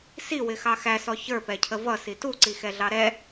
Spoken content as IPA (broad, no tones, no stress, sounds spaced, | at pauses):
s i w ɪ x ɑ x æ s ɔ ç ə˞ p ɛ cʰ ə v ʌ s i t u ǀ i x ɛ ɮ ɑ ɾ ɛ